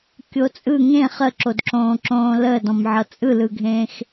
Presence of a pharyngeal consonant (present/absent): present